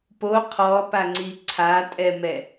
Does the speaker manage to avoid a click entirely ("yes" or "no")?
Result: no